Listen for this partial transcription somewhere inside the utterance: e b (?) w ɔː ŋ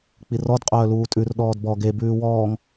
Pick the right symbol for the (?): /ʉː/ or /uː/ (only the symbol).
ʉː